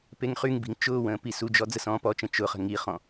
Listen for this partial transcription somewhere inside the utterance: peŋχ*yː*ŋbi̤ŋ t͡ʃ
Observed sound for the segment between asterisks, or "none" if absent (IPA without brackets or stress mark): y